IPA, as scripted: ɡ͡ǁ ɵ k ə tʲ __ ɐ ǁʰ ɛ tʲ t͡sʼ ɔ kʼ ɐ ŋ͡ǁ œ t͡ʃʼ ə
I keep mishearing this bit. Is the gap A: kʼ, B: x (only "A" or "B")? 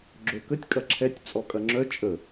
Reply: A